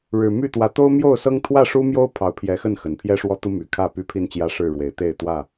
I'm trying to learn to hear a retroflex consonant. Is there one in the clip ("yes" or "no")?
yes